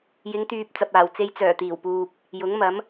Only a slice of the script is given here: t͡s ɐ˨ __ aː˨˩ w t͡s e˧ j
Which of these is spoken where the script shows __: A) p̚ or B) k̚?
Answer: A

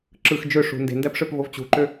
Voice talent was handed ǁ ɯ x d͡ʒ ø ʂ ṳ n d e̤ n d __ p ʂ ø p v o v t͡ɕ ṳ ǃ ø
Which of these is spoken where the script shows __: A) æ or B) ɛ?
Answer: A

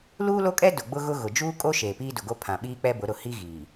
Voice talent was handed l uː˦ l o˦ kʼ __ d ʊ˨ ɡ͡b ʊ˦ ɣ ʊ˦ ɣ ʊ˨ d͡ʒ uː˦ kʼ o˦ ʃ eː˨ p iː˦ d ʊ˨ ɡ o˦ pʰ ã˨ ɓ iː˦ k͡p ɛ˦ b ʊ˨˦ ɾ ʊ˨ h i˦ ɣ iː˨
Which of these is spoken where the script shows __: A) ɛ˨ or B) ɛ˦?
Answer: B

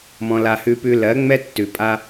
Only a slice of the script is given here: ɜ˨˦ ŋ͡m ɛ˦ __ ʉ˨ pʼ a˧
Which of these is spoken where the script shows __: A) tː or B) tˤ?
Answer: A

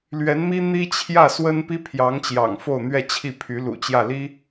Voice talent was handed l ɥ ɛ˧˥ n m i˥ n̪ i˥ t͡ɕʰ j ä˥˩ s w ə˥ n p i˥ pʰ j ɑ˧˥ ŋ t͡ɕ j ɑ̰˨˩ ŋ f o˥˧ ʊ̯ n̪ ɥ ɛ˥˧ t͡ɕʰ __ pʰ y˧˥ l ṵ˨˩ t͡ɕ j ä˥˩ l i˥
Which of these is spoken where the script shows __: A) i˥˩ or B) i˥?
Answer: A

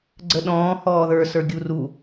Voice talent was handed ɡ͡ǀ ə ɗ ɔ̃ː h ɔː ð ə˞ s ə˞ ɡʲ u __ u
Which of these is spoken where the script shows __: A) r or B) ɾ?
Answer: A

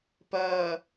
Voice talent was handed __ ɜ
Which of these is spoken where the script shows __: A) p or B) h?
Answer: A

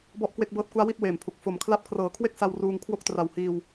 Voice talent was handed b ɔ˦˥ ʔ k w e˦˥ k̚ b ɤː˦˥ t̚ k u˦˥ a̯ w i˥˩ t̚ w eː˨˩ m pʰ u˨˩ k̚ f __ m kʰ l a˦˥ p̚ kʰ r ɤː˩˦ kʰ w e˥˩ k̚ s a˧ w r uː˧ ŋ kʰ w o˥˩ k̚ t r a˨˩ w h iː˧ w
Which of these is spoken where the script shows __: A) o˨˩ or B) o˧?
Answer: A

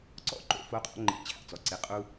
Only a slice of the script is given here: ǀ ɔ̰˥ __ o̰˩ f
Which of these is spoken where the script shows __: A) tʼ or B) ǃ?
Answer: B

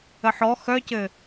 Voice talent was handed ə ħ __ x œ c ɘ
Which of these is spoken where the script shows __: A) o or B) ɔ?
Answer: B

